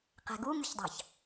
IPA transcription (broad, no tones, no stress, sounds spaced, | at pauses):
q ɛ̤ ɡ u ŋ y ç dˤ ɑ̤ ç